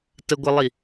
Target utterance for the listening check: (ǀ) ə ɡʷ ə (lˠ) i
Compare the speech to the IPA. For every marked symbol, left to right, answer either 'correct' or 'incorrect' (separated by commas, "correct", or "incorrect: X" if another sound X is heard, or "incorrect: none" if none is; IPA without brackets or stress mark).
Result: incorrect: t, correct